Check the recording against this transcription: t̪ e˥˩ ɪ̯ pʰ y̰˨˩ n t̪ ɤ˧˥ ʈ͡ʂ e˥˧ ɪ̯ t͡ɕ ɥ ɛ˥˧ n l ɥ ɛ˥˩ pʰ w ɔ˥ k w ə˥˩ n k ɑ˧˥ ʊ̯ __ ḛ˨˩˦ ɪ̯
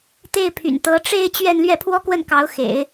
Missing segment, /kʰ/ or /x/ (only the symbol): x